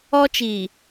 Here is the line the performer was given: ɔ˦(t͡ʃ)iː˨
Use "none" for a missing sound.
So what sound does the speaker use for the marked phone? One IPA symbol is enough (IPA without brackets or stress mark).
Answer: t͡ʃ